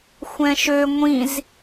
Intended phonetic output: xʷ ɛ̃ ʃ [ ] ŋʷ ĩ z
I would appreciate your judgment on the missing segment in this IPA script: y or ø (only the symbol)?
ø